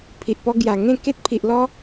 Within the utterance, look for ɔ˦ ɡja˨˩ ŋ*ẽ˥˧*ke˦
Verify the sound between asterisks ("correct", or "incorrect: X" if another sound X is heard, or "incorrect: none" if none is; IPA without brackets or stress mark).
correct